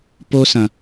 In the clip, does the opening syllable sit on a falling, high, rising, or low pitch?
high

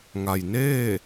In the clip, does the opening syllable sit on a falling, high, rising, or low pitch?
low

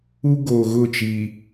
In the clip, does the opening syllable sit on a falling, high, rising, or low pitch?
high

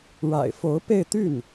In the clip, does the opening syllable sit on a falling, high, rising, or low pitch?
low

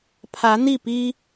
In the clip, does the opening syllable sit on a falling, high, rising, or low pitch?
rising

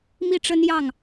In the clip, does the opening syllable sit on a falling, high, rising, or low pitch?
falling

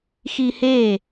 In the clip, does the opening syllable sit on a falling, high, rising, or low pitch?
high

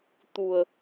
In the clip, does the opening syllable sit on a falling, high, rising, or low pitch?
low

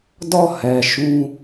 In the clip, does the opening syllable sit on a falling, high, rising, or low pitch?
falling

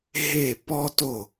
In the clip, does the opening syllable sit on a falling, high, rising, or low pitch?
falling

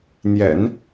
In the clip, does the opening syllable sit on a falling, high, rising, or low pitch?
low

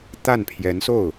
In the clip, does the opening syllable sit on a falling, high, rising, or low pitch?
falling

